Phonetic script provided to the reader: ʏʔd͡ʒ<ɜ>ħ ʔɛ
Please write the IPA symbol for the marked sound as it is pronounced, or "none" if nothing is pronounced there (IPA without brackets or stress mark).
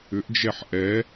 ɛ